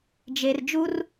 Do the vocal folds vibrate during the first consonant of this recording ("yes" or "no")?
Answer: yes